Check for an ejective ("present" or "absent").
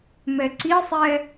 absent